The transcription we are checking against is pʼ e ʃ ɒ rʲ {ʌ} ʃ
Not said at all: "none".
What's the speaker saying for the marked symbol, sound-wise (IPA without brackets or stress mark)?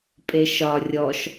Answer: ɔ